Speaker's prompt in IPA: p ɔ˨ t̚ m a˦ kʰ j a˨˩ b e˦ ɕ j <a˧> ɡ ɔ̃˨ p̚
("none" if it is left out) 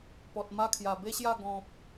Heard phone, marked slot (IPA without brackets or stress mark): a˥˧